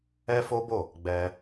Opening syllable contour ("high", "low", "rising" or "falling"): high